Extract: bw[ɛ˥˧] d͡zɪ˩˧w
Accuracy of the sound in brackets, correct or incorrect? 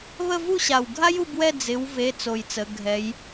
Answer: correct